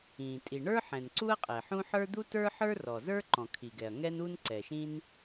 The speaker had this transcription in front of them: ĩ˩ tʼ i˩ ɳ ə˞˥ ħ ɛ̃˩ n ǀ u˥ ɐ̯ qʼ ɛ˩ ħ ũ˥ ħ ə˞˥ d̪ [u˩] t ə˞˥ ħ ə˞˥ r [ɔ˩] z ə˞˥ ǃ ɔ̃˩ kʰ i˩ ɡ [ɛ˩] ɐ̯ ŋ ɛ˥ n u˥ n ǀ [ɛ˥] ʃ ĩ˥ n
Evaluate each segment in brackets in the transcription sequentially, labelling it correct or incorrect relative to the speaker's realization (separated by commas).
incorrect, correct, correct, incorrect